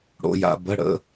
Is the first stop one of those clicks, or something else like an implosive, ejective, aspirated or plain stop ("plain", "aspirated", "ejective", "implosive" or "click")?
plain